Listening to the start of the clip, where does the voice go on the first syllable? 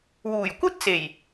low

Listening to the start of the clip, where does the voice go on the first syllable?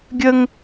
high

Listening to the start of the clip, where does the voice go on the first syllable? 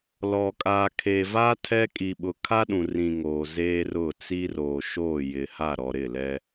low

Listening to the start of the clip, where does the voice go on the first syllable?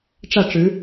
falling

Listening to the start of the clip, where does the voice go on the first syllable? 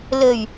low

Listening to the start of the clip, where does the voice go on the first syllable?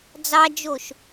high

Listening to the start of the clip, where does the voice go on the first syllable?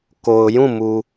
low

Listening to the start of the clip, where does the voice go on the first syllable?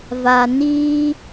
low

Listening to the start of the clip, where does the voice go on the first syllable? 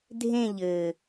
falling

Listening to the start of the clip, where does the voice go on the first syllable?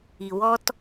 low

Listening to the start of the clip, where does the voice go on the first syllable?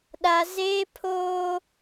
high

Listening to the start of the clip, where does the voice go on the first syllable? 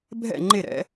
falling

